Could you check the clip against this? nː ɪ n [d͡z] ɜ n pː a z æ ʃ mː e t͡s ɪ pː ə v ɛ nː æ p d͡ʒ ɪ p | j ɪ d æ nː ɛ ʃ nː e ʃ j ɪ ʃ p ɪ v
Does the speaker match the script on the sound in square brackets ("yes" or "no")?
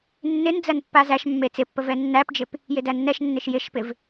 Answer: yes